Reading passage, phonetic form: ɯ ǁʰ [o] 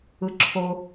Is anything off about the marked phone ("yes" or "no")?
no